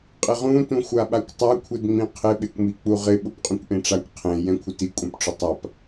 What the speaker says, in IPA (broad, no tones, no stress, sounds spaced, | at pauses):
qʼ ɪ ʁ ũ t ũ xʷ a ɓ a kʷ tˤ a kʷʰ ɪ d ŋ͡m ĩ qʰ ɪ ɓ e kʷ m i k͡p u ʁ ɪ ɓ ʊ p qʼ ũ kʷ ʔ ẽ ʈ͡ʂ a kʷ qʰ ẽ j ɛ̃ kʷʰ ɪ t i kʷʼ ɛ̃ p ʈ͡ʂ ʊ tˤ a p